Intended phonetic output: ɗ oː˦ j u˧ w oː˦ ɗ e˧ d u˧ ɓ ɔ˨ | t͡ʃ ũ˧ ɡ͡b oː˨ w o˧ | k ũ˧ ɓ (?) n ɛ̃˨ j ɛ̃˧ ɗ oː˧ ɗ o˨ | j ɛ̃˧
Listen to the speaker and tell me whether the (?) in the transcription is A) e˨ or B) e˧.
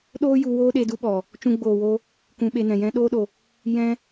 B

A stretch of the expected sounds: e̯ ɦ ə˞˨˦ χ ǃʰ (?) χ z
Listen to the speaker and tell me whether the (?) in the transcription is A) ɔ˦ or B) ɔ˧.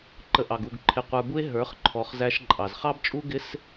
B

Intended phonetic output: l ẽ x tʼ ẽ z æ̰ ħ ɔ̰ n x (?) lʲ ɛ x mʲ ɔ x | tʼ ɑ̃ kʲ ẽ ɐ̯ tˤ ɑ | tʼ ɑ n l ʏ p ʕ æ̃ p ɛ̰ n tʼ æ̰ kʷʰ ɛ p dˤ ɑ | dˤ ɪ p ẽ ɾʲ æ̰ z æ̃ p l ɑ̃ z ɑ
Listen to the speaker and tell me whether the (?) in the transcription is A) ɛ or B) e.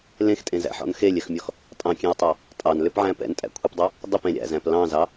B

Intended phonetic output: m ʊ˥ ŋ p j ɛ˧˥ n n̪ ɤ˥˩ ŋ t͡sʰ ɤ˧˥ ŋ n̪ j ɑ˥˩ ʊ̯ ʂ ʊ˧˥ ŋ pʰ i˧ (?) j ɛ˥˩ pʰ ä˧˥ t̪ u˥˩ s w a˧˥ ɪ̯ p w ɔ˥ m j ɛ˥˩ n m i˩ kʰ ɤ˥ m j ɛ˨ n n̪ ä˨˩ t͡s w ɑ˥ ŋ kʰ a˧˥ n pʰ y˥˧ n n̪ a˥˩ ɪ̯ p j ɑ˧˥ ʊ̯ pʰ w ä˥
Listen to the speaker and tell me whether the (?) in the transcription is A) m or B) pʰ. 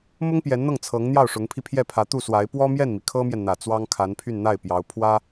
B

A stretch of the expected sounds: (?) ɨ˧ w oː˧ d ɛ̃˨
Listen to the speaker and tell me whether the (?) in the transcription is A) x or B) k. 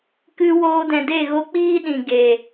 B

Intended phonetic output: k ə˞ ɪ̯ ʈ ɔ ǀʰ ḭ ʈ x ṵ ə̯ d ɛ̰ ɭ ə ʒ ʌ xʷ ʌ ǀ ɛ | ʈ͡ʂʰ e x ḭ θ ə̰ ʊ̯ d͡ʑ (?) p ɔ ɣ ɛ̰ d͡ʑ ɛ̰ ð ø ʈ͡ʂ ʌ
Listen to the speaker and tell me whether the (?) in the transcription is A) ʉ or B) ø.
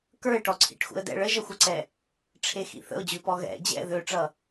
A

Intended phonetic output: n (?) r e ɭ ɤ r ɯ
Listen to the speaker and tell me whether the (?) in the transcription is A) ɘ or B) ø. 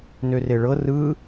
B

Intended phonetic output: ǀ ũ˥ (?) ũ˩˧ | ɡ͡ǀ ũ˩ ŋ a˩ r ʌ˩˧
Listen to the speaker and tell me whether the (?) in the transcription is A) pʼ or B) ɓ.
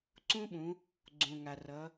B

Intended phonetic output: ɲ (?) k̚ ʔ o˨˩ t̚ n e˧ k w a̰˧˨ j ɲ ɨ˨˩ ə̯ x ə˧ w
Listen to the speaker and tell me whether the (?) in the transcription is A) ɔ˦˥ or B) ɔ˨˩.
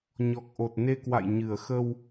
B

